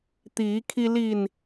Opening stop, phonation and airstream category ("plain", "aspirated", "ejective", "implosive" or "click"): plain